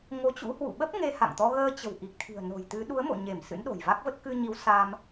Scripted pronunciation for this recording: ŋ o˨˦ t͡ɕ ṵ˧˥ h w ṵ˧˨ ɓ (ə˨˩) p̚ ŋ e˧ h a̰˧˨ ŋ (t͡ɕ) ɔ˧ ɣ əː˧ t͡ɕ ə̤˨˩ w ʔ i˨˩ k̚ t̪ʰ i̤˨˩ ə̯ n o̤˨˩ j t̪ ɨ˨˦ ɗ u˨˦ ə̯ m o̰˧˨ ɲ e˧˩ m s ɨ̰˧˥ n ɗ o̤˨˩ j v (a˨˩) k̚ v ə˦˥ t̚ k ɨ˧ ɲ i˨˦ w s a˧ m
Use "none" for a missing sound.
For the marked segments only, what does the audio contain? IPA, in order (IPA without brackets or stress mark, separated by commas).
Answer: ə˦˥, t̪, a˦˥